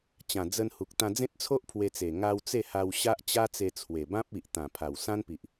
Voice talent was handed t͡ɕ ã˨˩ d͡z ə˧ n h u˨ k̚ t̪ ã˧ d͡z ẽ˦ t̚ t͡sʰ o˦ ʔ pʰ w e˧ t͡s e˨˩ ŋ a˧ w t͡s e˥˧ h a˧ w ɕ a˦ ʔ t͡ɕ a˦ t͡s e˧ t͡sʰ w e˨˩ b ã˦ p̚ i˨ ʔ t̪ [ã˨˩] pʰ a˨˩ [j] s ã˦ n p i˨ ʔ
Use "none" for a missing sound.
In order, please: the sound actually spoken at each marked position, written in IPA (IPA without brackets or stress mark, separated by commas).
ã˨˩, w